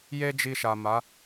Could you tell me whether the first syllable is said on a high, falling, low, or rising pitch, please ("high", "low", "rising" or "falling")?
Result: high